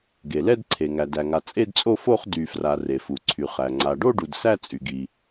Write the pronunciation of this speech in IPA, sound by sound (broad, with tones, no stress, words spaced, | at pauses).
ɡe˩lɛ˥˧dǀʰe˩ ŋæ˩dæ˩ŋa˩ t͡sʼe˥˧dt͡sʼo˥˧fo˥˧χ dy˩fra˩ re˩fu˩ǀʰy˩χæ˩ ŋ͡ǀa˩ɖo˥˧ɖu˩d sæ˥˧t͡sʼy˩ɡi˩